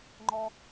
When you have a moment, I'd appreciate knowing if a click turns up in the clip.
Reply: yes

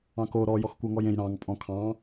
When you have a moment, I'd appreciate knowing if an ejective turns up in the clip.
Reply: yes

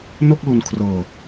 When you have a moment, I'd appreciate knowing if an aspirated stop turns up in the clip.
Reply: yes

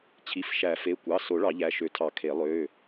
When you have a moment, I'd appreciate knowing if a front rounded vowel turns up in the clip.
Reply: yes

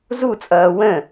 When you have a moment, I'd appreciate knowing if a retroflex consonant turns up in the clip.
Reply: no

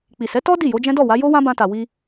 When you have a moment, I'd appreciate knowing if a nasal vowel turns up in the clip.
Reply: yes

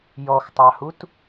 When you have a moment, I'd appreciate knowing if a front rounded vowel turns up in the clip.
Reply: no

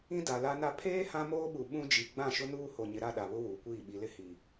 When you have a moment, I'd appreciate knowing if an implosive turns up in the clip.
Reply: yes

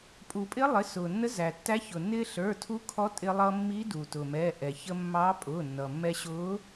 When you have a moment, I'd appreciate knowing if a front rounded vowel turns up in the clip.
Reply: no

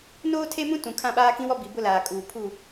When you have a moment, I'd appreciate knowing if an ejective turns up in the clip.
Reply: yes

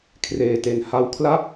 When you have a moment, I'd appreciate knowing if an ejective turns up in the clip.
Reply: no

